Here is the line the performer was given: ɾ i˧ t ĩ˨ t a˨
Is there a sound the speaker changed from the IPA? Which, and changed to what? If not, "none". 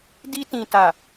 ɾ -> d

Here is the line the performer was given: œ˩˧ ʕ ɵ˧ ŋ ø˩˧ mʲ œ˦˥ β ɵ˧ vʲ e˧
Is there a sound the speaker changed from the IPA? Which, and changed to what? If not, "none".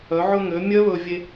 none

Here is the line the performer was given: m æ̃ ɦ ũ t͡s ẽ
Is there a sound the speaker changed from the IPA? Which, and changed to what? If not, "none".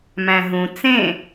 none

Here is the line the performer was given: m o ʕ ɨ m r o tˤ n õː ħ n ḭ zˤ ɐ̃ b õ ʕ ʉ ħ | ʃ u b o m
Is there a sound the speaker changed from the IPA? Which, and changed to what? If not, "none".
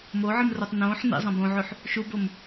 none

